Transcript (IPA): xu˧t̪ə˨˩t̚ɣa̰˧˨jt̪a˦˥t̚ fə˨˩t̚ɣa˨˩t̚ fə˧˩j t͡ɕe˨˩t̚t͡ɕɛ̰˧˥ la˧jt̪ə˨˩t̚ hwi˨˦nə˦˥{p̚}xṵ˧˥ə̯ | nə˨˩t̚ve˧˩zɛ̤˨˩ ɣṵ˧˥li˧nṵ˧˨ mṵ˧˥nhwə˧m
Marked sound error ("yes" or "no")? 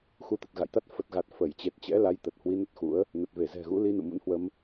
yes